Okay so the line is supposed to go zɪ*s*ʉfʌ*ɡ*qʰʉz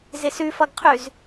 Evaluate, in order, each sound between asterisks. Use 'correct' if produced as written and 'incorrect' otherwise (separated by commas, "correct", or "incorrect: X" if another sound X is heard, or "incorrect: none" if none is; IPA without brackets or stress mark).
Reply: correct, correct